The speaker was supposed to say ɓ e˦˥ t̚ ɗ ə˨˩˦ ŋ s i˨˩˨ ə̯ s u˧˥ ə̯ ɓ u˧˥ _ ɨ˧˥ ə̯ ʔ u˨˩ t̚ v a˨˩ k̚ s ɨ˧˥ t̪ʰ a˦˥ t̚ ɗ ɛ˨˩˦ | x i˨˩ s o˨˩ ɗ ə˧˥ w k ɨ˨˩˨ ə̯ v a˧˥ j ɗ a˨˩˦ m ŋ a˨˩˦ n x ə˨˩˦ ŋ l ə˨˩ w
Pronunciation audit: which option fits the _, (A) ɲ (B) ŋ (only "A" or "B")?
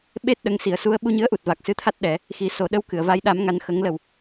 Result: A